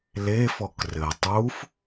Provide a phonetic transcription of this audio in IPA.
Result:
l e f ɔ k r ɘ tˤ u f

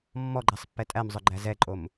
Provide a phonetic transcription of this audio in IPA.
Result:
mː ɔ ɡ͡ǃ æ sˤ pː ɛ tʼ æ m zˤ œ ɡ͡ǃ æ z ɛ ǃʼ o m

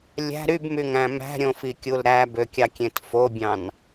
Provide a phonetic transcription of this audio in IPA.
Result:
lʲ æ̤ ɾ y b m y ŋ æ̃ m æ̤ ɾʲ õ f i kʲ u l ɾ æ b ø kʲ ɑ kʲ ẽ t f o bʲ ɑ̃ n

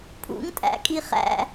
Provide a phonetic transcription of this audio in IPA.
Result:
pʰ ṵ ŋ tʼ æ̰ kʼ i χ æ̰

